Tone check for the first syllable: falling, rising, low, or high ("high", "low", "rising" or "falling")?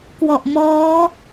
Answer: low